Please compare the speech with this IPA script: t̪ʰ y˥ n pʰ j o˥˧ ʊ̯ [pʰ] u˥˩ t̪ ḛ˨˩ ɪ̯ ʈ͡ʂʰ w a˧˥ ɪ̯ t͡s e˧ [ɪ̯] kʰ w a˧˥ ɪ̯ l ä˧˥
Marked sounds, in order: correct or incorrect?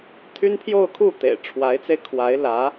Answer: incorrect: kʰ, correct

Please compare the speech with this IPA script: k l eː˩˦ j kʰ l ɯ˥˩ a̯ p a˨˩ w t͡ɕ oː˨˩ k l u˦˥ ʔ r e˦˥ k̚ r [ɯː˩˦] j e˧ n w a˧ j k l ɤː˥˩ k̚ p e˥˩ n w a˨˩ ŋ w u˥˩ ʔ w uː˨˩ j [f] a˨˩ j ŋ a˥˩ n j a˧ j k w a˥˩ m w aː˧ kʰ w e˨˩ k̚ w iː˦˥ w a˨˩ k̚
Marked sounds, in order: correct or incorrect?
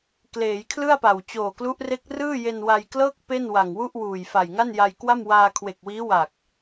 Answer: incorrect: ɯː˥˩, correct

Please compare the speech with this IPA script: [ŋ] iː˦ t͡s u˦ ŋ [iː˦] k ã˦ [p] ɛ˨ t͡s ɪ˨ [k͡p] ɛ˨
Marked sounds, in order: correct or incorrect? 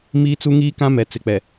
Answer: incorrect: m, correct, incorrect: m, correct

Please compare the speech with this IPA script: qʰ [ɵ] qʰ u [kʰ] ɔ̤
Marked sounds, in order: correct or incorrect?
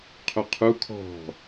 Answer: correct, correct

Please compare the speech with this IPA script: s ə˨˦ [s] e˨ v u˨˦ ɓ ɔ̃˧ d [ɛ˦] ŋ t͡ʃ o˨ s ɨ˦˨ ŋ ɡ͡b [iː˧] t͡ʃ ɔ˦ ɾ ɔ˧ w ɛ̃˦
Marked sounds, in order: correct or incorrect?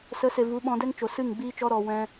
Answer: correct, correct, incorrect: iː˦

